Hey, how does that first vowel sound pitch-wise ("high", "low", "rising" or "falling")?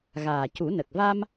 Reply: low